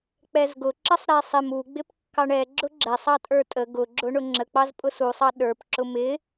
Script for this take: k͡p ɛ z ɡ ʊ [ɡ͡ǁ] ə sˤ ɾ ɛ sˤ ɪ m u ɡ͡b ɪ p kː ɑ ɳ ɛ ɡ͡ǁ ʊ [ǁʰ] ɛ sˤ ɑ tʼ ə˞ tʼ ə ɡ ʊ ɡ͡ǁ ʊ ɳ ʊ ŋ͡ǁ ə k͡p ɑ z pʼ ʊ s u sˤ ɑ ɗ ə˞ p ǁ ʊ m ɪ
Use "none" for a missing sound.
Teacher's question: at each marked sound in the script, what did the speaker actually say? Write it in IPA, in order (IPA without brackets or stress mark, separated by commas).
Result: ǁ, ɡ͡ǁ